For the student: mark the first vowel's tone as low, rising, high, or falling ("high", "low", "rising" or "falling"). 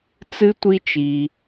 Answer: high